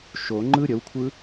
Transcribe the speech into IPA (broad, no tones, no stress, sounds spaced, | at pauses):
ʃ o ŋ͡ǃ ɯ ɾʲ ə w kʷʰ ɯ